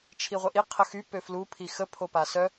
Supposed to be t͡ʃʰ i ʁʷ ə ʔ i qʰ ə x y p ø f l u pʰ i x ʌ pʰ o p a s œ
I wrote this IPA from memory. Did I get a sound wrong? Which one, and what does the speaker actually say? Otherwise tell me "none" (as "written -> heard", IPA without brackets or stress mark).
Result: ʌ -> ə